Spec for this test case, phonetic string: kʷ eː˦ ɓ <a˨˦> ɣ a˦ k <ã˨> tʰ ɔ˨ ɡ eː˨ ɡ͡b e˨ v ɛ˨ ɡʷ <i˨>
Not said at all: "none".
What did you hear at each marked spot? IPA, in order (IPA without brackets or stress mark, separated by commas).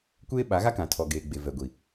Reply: a˨˦, ã˨, i˨